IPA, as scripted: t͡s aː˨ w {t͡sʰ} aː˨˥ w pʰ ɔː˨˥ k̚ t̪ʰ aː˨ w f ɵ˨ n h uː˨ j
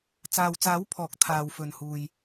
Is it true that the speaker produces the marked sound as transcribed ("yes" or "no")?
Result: no